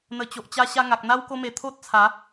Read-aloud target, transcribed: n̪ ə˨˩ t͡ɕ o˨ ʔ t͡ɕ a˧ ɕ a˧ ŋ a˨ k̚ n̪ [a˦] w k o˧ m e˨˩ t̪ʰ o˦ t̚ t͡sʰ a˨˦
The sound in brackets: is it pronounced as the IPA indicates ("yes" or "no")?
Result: yes